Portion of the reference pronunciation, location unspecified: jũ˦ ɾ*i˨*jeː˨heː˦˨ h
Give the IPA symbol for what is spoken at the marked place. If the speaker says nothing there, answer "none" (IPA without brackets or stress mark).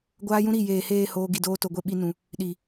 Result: i˨